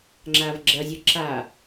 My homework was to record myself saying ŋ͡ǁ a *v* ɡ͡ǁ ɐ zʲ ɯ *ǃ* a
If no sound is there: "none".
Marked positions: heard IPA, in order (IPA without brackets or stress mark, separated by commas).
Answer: v, ǁ